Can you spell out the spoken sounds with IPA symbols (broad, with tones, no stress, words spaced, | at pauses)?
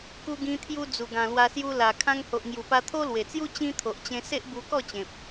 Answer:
ku˧ɡĩ˧t̪ʰju˧ d͡zu˨˩ɡã˨˩lwa˧sju˧ la˨˩ kʰã˧ŋho˨ʔŋju˨˩pa˧ t̪ʰo˦lwe˨˩t͡sju˦ t͡ɕĩ˦t̪ʰo˨ʔt͡ɕẽ˧ se˦ʔbu˧kɔ˥˧t͡ɕẽ˨p̚